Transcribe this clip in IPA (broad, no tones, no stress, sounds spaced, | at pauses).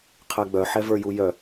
qʰ ɛ ɡ͡b œ ħ ɛ v ə˞ j u j œ